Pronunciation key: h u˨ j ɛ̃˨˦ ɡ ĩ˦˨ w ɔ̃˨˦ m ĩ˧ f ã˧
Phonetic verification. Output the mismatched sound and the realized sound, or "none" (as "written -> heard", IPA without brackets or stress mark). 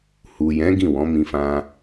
none